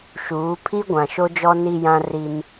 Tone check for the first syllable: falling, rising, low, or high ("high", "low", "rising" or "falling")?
rising